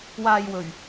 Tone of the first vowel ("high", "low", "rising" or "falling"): low